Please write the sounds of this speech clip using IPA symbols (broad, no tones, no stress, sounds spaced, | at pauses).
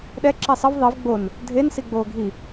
ɗ ɛ ǁ i sˤ ə v ðˤ i v ɡ͡b o n | dʱ e n s i ɡ͡b oː ɡʱ i